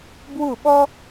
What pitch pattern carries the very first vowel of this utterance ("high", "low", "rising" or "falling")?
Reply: falling